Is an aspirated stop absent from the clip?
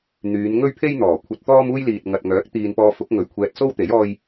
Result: no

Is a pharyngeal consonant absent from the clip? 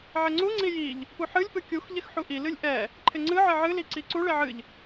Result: no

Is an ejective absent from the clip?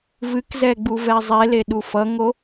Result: yes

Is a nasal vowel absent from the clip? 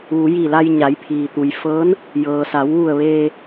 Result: yes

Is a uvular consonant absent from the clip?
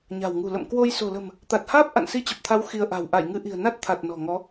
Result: yes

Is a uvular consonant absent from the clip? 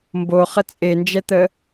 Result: no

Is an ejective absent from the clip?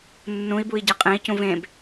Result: no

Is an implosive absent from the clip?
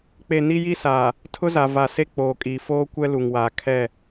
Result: yes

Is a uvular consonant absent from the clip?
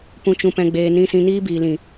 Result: yes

